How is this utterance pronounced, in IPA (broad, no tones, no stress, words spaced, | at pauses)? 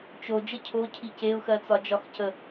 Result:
t͡ʃo d͡ʒəcʰocʰi ceʊ̯xɜt͡sɒ d͡ʒɒxcə